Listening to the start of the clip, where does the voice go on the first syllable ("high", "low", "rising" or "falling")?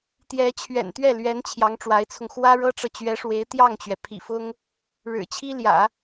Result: rising